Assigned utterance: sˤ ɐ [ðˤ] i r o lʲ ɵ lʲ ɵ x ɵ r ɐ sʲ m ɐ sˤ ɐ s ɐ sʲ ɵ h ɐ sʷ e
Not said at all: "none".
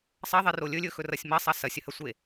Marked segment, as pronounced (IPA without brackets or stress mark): ðˤ